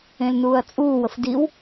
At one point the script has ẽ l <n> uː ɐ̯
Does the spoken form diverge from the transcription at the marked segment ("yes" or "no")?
no